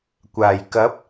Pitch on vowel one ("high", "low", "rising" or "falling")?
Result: low